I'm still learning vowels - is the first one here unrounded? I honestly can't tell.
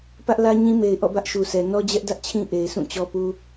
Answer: yes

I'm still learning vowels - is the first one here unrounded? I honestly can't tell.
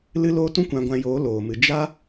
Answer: yes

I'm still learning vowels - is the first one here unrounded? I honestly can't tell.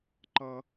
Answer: yes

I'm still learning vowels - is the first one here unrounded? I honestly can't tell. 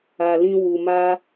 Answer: yes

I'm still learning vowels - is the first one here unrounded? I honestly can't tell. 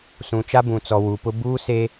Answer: no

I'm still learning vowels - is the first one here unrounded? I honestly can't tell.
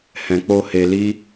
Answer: yes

